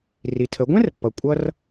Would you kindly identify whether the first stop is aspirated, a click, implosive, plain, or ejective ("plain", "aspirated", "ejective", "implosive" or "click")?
aspirated